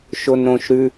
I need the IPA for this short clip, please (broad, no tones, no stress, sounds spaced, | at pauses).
ʃ o n ɾ õ ʃ ɾ ʉ